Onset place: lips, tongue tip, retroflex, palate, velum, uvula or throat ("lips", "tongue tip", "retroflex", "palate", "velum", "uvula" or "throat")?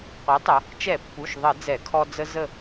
uvula